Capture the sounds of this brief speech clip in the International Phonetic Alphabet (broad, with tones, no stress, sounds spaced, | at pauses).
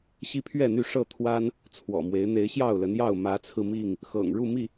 ɕ i˦ pʰ ɥ ɛ˥˨ n̪ y˥˨ ʂ ɤ˥˨ t̪ʰ w a˦ n | t͡sʰ w ɔ̰˨˩ m w e˨˦ ɪ̯ n̪ e˨˦ ɪ̯ ɕ j ɑ˥˨ ʊ̯ l ə˨˦ n j ɑ˥˨ ʊ̯ m ä˨˦ t͡sʰ ɹ̩˧ m i˥˨ ŋ | x ɤ̰˨˩ ŋ ɻ u˥˨ m i˥˨